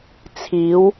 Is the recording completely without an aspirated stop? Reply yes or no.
no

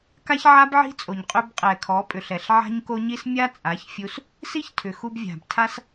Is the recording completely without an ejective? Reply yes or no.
no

